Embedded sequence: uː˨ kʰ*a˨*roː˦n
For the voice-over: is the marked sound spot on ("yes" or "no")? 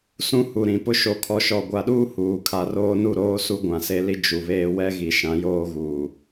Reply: yes